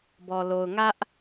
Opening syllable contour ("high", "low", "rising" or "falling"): low